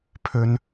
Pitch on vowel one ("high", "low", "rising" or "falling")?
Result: high